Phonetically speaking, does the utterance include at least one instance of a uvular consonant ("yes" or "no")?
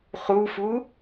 yes